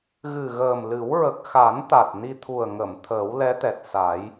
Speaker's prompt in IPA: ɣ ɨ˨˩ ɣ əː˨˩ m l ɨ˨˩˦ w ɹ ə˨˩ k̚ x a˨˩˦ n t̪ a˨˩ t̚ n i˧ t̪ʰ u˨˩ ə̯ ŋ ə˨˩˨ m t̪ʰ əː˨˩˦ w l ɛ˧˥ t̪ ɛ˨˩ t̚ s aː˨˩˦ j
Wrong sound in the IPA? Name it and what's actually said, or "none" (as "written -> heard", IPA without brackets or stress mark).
none